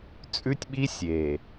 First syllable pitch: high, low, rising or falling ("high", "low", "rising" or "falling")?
high